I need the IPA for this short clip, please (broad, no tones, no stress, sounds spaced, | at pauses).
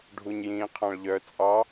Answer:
ɖʱ u ɲ j ĩː qʰ ɑ̃ ɭ ʎ œ t͡sʼ ɑ